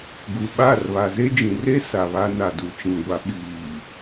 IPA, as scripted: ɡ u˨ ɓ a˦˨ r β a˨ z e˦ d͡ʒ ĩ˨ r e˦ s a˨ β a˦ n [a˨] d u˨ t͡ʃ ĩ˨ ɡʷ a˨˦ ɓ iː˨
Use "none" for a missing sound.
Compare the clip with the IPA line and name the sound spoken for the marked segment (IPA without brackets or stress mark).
a˨